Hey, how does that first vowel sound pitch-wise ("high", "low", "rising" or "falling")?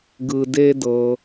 low